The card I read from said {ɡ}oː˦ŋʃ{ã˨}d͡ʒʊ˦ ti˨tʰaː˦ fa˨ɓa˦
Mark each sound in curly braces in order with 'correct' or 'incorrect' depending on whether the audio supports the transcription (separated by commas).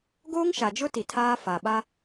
correct, incorrect